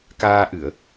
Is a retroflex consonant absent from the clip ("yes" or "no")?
yes